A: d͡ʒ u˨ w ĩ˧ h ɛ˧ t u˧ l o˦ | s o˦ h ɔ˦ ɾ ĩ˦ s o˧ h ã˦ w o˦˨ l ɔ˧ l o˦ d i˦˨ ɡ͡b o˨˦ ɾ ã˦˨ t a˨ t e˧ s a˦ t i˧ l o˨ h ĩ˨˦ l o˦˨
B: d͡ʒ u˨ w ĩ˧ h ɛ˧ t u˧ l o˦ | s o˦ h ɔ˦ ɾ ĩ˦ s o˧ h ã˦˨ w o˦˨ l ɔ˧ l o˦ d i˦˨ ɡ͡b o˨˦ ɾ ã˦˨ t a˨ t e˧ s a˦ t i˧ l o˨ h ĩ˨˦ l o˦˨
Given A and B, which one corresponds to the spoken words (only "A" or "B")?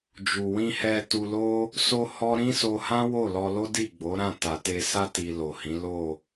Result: A